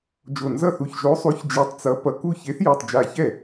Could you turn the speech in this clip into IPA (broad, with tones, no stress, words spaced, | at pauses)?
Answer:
d͡ʒo˧˩nzʌ˥˩θu˧˩ç ʒo˨˥sˤu˨˥ç d͡ʒi˧˩tˤt͡sʌ˨˥ pʌ˧˩ku˥˩ çe˨˥θ ju˧˩tˤd͡ʒa˧˩ çɛ˥˩